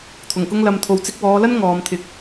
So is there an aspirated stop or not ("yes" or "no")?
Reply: yes